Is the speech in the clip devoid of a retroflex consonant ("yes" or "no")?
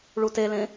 no